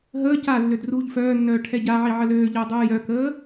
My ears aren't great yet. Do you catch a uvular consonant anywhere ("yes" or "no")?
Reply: no